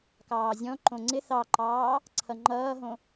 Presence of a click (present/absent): present